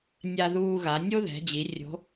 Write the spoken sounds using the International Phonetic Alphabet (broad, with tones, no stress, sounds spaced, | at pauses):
nʲ a˧ ð uː˧ ɣ a˩˧ nʲ o˥ ð ɛ̤˩˧ d͡ʑ i˩˧ rʲ o̤˧˥